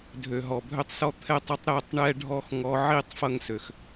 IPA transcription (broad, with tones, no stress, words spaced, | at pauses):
dʱø˨ɦɔ˨bʱø˦tˤsɔ˦ t̪ʰɛ˦tˤʌ˦tˤ ɾɛ˦˨tˤɳɛ˦ɖʱɔ˦x ŋɔ˧ʕi˦˨tˤ fʌ˦ŋsø˨x